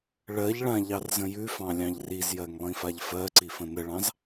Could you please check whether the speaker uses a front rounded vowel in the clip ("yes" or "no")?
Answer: no